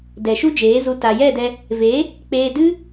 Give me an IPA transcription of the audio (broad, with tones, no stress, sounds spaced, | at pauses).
d ɛ˨ ʃ u˦ d͡ʒ eː˨˦ z u˧ t a˨ j ɛ˦˨ d ɛ˧ | v e˨˦ | k͡p eː˧ d ɨ˦